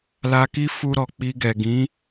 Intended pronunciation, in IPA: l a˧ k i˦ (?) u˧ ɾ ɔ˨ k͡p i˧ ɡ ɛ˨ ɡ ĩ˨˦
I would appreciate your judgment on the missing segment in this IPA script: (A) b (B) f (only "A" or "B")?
B